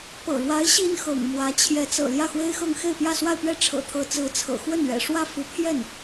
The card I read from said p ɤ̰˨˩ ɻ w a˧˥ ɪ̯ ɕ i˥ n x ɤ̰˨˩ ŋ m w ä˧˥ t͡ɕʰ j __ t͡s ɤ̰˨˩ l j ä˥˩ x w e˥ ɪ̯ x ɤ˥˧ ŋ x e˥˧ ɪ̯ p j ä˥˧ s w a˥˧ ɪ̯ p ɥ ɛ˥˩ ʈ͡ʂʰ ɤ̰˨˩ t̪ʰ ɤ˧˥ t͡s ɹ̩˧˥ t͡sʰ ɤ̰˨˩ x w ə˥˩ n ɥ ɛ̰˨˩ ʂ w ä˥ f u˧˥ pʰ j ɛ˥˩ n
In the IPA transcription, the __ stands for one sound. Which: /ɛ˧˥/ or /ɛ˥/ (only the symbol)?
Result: ɛ˧˥